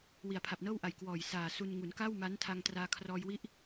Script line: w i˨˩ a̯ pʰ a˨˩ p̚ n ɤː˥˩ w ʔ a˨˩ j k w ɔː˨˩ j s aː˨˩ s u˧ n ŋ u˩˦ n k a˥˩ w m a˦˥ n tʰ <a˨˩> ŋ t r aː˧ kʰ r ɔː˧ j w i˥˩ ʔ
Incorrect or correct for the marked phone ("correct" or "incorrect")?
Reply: incorrect